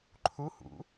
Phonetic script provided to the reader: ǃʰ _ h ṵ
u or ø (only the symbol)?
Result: u